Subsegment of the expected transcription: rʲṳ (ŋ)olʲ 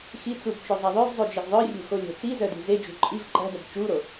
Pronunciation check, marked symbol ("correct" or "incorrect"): incorrect